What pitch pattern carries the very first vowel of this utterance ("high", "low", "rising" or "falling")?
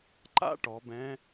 high